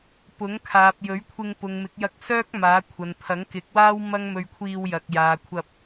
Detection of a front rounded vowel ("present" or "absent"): present